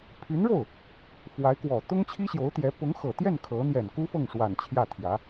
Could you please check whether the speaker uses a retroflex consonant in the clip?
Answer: yes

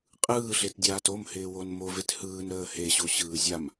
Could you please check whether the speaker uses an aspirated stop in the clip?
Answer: no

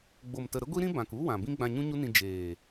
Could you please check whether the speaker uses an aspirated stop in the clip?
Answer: no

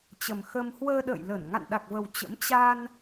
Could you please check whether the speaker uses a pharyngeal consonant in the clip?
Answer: no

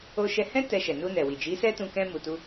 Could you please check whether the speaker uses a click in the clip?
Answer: no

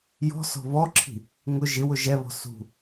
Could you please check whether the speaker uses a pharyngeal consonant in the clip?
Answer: no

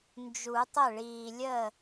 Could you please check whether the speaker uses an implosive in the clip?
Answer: no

